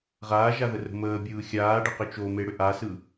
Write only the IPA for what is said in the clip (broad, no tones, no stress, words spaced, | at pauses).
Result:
ʁaːʒaðərə̤ məːbʲɯː xʲaːɖəqʏ t͡ʃomeɽʏ ʔasɯ